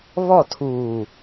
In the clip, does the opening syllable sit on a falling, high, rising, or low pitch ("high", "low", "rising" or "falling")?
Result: falling